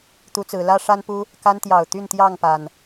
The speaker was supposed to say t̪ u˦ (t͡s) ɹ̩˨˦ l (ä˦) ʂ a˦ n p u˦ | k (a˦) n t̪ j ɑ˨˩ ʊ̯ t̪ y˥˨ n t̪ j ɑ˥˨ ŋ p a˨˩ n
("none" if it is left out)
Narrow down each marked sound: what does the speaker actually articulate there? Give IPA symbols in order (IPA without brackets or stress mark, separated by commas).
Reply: t͡s, ä˦, a˦